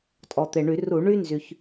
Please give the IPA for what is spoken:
tʼ ɔ˩ t̪ e˩ ɳ y˧˩˧ r u˧˩˧ ɳ y˥ n z y˩ ç

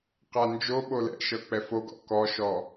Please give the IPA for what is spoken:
q a n d͡ʒ o ɓ o l ɛ̰ ʃ ɤ k͡p ɛ f o ɡ ɔ̰ k ɔ ʃ ɔ

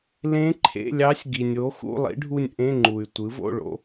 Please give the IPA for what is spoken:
l ẽ˧˥ ǃʰ ḛ˧˥˧ lʲ ɑ˧˥ sʲ ɡ i˩ nʲ o˩˥ x ṵ˧˥˧ lˠ ḭ˧˥ ɖʱ u˦˨ nʲ ʔ ẽ˧˥˧ ŋ͡ǃ u˩ y̯ tʷ ɯ˩˥ v o̰˧˥˧ ɭ o̰˩˥

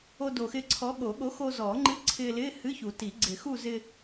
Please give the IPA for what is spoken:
o˧ d o˨˩ x ɪː˧ ǀʰ ɔ˨˥ ɠ o˨˩˦ ɠ o˨˥ x o˧ z ɔː˨˩˦ ŋ͡ǃ ɨ˧˥˧ ǀʰ ɪː˧ l ɪː˧˥˧ h ɨ˧˥˧ ç u˨˩˦ t i˨˩˦ ɡ͡ǀ ɪ˨˩˦ x u˥˧ z ɪ˧

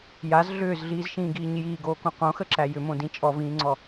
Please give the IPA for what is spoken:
j a z ɮ ʏː z ɮ iː z ʃ ĩː ɡ iː ɲ j iː ɡ oː k õ q õ x ə ǁ æ j ʏ m õ d ĩ t͡ʃʼ ɔ v ĩː ŋ͡ǀ ɔ

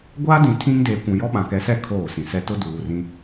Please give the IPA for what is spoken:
ɡʷ aː˦ d ĩ˨ tʰ ĩ˦ ŋ d eː˨ kʷ ũ˨ j ɔ˦ ɓ ã˨ k ɛ˨˦ s ɛ˦ kʰ oː˦˨ s ĩ˨ s ɛ˦ t ʊ˦ d uː˨ r ĩ˦

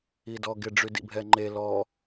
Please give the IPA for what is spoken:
i d ɔ ɡ ɪ ɖ͡ʐ y d ḭ bʱ ɛ ŋ͡ǃ e l ɔ

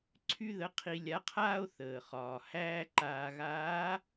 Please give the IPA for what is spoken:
ǀʰ y˥ ð ə˧˥ qʰ i˧ lʲ a˧˥ qʰ aː˥ o̯ θ əː˩ χ ɒː˩ h æː˥ ǃ aː˧ ɣ aː˧˥

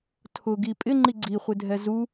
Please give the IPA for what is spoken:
tʰ ʊ ɡ i pʼ ɪ ŋ͡ǃ i ɡ͡ǀ i χʷ ɪ dʱ ɛ z u

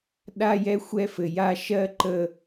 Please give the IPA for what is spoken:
ɗ a˦ j ɛ˦ xʷ ɛ˦ f ɘ˨ j a˦ ʃ ɜ˦ ǃ ə˦

